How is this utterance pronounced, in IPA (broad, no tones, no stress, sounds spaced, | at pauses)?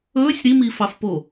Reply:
ɵː sʲ ɾ i m iː f ɑ f p o